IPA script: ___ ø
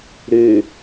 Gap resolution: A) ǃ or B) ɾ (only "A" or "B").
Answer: B